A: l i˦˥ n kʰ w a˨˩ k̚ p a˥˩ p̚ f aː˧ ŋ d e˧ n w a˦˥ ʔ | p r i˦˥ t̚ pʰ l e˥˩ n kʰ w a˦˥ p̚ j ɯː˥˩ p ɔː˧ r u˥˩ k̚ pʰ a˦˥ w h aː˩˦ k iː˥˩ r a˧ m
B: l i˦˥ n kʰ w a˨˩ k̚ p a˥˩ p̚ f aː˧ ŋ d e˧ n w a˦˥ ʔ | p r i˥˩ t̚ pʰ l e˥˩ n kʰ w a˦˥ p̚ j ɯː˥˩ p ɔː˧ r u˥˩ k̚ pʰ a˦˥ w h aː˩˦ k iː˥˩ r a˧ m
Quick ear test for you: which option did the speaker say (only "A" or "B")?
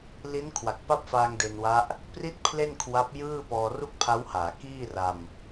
B